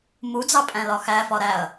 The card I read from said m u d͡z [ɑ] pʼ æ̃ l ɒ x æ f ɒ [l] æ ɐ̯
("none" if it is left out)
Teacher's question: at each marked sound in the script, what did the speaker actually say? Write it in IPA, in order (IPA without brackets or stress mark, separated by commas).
ɑ, ɾ